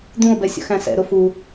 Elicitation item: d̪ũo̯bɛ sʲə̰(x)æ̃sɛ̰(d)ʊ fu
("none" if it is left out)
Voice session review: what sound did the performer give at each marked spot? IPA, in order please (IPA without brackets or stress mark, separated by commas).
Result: x, ɾ